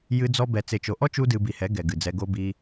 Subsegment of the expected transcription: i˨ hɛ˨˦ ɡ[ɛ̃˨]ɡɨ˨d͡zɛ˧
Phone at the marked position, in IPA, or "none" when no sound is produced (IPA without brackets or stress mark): ɛ˨